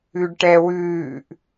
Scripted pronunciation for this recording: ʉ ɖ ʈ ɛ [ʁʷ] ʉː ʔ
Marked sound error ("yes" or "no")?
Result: yes